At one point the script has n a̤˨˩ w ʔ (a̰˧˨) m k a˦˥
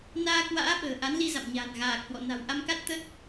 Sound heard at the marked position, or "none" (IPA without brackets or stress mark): a˧